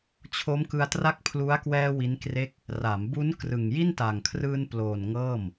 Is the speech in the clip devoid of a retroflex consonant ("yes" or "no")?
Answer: yes